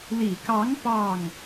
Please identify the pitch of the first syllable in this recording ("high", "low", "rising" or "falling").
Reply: low